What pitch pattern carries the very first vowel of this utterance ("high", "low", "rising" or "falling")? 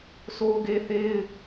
high